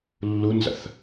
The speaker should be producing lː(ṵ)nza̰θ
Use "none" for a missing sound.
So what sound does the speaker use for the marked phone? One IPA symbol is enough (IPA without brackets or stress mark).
u